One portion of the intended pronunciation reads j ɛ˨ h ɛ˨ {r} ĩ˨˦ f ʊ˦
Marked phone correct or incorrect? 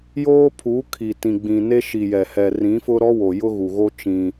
correct